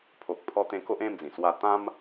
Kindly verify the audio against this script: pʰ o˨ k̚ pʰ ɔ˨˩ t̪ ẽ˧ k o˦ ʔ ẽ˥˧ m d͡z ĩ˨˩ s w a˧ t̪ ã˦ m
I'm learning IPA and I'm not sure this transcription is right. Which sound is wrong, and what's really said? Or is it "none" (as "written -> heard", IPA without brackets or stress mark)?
ɔ˨˩ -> ɔ˧